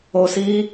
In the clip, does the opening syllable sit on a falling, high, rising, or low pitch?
low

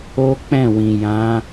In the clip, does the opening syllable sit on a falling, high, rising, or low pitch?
high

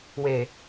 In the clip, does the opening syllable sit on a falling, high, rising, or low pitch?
low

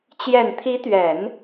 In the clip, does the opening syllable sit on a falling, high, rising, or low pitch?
low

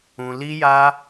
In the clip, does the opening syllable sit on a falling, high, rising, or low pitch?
low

